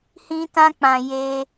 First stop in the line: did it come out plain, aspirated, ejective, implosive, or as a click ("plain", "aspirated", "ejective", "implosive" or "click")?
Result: plain